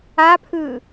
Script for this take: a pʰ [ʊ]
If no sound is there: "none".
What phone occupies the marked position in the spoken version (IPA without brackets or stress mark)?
ɯ